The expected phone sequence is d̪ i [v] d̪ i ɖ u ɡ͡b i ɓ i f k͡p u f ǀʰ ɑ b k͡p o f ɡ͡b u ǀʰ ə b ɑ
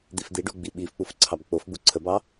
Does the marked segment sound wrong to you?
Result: yes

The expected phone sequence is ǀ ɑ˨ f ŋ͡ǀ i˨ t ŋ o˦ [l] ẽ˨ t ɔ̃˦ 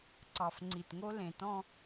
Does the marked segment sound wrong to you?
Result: no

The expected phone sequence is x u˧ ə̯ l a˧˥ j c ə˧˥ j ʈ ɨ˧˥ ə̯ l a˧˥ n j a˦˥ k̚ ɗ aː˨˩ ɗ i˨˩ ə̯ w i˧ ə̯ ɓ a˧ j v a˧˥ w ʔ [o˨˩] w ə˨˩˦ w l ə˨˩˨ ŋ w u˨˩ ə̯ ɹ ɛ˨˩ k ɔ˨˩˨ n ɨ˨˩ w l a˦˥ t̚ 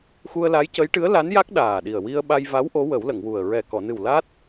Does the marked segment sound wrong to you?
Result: yes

